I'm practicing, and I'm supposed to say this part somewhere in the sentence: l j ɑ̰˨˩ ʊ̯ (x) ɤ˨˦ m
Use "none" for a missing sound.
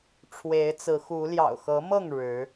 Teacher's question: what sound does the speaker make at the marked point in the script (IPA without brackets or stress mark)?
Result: x